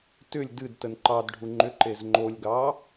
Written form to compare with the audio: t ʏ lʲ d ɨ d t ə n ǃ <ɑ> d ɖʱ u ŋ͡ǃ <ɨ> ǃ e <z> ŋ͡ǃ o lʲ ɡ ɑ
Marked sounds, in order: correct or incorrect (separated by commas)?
correct, incorrect, correct